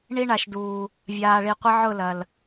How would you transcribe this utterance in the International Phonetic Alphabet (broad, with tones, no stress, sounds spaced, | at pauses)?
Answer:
ɳ i˦ ɳ a˨ ʃ d uː˨ | vʲ aː˨ ɭ i˨ qʷ ɐ˦ ʕ ʊ˦˨ l ɐ˨ l